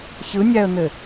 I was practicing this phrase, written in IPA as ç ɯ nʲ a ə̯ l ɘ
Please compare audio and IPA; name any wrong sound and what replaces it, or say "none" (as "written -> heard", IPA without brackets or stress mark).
l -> n̪